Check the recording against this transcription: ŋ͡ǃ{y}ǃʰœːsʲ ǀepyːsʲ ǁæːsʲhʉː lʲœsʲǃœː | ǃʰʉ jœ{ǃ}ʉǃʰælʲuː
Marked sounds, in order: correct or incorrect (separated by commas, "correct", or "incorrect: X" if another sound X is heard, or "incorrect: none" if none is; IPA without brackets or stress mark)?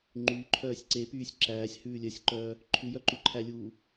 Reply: incorrect: yː, correct